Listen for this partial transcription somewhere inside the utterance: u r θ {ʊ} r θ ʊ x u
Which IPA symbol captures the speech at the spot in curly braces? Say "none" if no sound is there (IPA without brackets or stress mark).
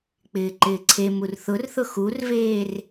ʊ